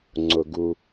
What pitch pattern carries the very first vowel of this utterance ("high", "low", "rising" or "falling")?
low